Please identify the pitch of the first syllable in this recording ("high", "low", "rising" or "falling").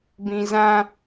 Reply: low